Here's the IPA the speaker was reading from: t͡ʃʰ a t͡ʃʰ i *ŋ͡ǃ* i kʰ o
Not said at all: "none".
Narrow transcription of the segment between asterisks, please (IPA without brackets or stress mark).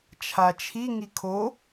ŋ